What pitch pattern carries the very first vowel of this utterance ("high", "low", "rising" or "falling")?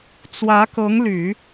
rising